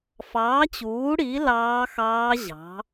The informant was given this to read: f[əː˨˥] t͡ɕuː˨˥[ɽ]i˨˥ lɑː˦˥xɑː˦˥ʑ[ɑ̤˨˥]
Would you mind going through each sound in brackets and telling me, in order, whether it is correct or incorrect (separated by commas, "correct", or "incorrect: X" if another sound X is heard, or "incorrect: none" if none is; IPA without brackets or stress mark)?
incorrect: ɑː˨˥, correct, correct